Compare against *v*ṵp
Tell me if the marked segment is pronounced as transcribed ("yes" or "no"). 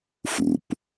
no